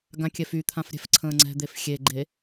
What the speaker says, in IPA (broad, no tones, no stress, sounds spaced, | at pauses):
ɡ ã kʲ ɛ f y t̪ʰ ã f ɾʲ ɛ̤ f ǀʰ ə̃ː ŋ͡ǀ ɛ̤ d̪ e f xʲ e ɡ͡ǃ e